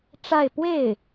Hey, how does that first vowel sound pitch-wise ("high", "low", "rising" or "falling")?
falling